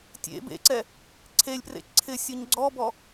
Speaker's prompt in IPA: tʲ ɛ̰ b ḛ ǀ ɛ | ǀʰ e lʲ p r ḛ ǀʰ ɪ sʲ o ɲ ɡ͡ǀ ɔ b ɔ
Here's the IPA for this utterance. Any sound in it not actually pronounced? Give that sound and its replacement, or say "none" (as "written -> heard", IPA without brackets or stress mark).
ɛ̰ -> ḛ